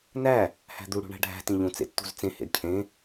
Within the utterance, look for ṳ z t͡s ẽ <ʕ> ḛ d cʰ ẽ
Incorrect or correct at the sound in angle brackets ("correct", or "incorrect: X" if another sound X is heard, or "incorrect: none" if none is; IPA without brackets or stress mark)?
incorrect: h